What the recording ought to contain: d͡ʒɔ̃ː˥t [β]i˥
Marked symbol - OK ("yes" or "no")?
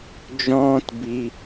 no